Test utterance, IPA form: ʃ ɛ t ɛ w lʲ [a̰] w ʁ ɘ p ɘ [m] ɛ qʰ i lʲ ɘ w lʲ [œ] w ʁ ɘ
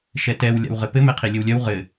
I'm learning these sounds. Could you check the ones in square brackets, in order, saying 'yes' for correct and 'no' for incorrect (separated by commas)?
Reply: yes, yes, yes